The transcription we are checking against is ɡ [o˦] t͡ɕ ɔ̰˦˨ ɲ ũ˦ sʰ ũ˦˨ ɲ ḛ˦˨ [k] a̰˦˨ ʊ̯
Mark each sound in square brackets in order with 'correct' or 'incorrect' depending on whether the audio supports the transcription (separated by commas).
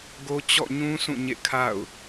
correct, incorrect